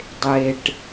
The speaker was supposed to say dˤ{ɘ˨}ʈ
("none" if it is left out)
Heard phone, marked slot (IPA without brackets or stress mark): e˨